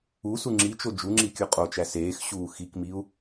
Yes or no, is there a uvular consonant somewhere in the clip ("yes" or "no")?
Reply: yes